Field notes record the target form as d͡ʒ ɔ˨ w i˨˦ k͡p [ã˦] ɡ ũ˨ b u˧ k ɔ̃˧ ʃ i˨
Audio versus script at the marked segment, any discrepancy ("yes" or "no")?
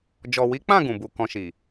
yes